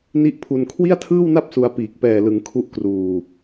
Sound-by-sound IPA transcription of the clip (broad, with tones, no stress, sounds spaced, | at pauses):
n i˥˩ ʔ pʰ u˧ n kʰ w i˥˩ a̯ tʰ ɯː˥˩ w n a˥˩ p̚ s u˧ a̯ p iː˨˩ k̚ p ɛː˨˩ l ɯ˩˦ ŋ kʰ u˦˥ ʔ k r uː˨˩